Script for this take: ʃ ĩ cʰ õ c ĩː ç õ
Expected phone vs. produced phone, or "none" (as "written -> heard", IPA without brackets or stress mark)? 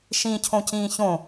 none